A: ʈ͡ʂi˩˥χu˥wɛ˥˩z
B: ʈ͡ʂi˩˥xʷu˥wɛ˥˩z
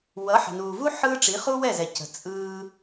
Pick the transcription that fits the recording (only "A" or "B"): A